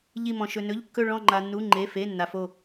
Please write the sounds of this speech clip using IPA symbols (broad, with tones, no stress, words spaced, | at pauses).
ʎi˥˧mɔ̃˧ ʃɵ˧nɵ˧˥˧ʎ kːɵ˥˧ ɭɔ̃˥˧ŋ͡ǃa˧nːu˧˥˧ ŋ͡ǃe˧˥˧fe˧˥˧ nːa˧fo˥˧